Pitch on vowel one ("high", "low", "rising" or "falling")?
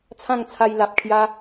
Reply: falling